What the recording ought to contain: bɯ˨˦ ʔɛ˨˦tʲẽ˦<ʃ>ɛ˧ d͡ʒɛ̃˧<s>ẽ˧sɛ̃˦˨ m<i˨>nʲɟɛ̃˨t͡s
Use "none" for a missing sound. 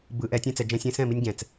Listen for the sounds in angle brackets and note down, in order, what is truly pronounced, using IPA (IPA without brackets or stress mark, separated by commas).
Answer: t͡s, sʲ, i˧